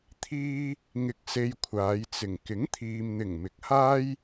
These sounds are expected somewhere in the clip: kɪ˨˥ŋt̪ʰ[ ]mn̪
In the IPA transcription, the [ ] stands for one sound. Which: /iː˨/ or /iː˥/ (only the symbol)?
iː˨